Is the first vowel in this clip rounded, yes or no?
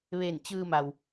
no